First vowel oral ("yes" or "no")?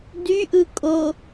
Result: yes